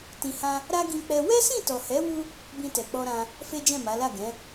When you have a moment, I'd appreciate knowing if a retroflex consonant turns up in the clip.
no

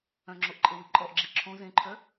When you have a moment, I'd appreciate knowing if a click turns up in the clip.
yes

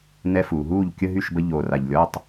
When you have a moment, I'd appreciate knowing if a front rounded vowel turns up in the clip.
yes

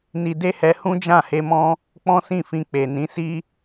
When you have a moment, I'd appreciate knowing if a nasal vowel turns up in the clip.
yes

